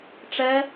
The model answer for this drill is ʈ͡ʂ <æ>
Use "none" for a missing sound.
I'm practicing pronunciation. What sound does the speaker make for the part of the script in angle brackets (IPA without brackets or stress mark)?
ɛ